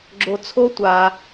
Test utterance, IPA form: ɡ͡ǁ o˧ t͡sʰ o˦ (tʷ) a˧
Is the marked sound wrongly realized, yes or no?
no